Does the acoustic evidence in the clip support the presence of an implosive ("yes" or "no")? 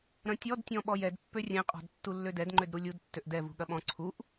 yes